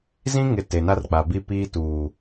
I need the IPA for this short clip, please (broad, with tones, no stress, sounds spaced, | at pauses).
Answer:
z ĩ˦ ŋ ɪ˨ t e˨ n a˦ r k͡p a˨ b i˦ p iː˦ t uː˨